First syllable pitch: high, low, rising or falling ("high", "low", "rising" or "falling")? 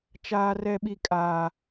high